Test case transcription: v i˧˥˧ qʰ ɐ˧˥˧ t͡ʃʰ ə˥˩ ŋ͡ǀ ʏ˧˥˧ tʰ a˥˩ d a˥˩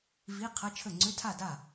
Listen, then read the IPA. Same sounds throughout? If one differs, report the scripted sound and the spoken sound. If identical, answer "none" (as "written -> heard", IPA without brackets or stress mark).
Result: none